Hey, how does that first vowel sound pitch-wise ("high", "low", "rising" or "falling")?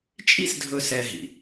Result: high